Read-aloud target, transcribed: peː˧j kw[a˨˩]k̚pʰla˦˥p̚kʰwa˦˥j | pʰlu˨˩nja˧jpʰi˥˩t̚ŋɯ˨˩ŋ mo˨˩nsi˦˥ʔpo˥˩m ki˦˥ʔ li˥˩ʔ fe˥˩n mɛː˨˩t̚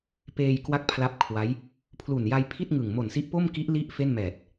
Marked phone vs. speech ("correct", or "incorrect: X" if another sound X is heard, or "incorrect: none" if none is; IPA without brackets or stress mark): incorrect: a˥˩